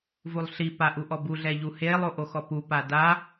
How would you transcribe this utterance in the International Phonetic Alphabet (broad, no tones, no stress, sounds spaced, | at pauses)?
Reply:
v u lˠ ɬ i p a ʔ u ʔ ɔ b u ɮ ɛ ʎ u h eː lˠ o ʔ o x ɔ p u p a d a